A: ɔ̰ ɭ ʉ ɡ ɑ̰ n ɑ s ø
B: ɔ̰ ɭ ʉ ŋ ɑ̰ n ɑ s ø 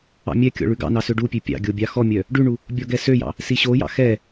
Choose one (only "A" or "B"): A